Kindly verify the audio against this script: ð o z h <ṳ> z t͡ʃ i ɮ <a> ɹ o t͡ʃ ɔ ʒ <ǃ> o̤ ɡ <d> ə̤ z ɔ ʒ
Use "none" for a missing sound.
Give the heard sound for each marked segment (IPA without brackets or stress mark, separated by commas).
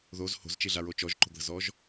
o̤, a, ǃ, ð